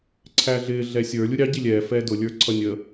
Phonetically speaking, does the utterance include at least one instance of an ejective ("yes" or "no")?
no